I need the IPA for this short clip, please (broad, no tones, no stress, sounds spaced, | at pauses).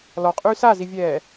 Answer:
l ɔ qʼ yː s a z i vʲ ɛː